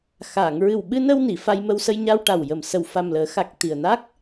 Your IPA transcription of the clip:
x a˨˩˨ ŋ ɹ ɨ˨˩ w ɓ ɨ˧ n ə˧ w n i˨˩˨ f a˧ j m ə˧ w s ə˧ j ɲ a˧ w ʈ a˨˩ w j ə˨˩ m s ə˨˩ w f a˨˩ m l əː˨˩˦ x a˨˩ k̚ t̪ i˨˩ ə̯ n a˦˥ k̚

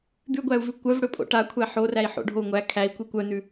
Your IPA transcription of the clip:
d̪ ʉ ɡʷ æ u̯ v ʉ kʷ œ v ɽ ɵ pʼ o̰ ʈ a kʷʰ æ ħ o r æ i̯ ħ o̰ ɖʱ o u̯ ŋʷ æ kʰ æ i̯ kʷ i kʷ œ n ʉ

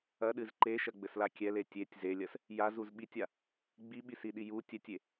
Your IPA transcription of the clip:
ɐ ɗ ɨ z ǃ e ʃ ɐ ɡ͡b ɘ s l a kʲ ɛ l e tʲ e tʲ z e lʲ ɐ s | j a z u z ɓ i tʲ a | ɡ͡b i ɓ i s i ɗ i j u tʲ ɛ tʲ e

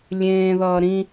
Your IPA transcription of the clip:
lʲ ẽː ð ʌː ɾ ĩ

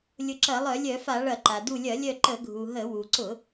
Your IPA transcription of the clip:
lʲ ʊ˧˩ ǁ ɐ˧˩˧ lˠ œ˧˩˧ lʲ œ˧˩˧ f a˧˩˧ ɭ ɐ˧˩˧ ǃ a˩ d u˧˩ lʲ ɐ˧˩˧ lʲ œ˧˩ ǃ ə˧˩˧ ɡʱ u˩ ɦ ə˧˩˧ w u˩ ǀ ʊ˧˩˧

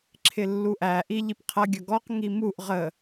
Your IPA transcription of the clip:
ǁʰ ɪ lː u ʔ æ ʔ i ʎ i p qʰ ʌ ɡʲ ʌ ɡ ɔ q ŋ i m u ʔ ʁ ə

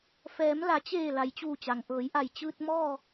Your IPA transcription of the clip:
f ɛː˩˧ m l a˩˧ t͡ɕ eː˧˩ l a˩ j t͡ɕ uː˧˩ t͡ɕ a˩ ŋ ʔ ɤː˩˧ j ʔ a˧˩ j t͡ɕ ɯː˧ t̚ m ɔː˥˨

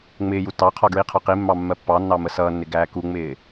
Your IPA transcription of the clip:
ŋ͡m ɪː j u t ɑ qʰ ɒ ɡ ɹ i qʰ ɒ q i mː ɑ mː ɜ pː ɑ nː ɑ m ə s ʌː nː ɪ ɡ æː k u ŋ͡m ɪː

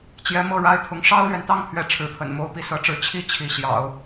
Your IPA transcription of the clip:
t͡ɕ j ɛ˧˥ m ɤ˥˩ ɻ a˥ ɪ̯ t̪ʰ ʊ˧˥ ŋ ʂ ɑ˥ ʊ̯ l ɥ ɛ˨ n t̪ ɑ˥˧ ŋ pʰ ɥ ɛ˥˩ ʈ͡ʂʰ ɻ̩˧˥ pʰ ə̰˨˩ n m o˧˥ ʊ̯ p i˧˥ s ɤ˧˥ ʈ͡ʂ ɻ̩˧˥ t͡ɕʰ i˥˩ t͡ɕʰ i˧˥ ɕ j ɑ̰˨˩˦ ʊ̯

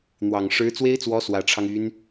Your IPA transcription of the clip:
n̪ w ɑ˨˩ ŋ ʂ ɻ̩˧˥ t͡s w e˥ ɪ̯ t͡s w ɔ˧˥ s w ä˨˩ ʈ͡ʂʰ ɑ˦ ŋ y˧˥ n

